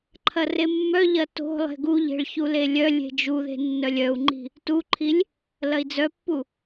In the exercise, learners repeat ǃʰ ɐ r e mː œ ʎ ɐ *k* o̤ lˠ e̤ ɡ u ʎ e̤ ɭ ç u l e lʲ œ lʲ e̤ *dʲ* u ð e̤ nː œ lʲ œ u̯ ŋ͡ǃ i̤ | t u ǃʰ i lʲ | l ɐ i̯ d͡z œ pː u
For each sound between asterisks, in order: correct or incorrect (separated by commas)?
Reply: incorrect, incorrect